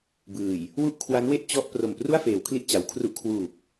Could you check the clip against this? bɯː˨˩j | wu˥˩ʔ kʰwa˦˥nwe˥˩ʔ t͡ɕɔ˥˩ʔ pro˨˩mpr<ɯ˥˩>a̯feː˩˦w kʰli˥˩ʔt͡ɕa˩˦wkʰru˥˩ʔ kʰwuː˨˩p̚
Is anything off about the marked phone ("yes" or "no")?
yes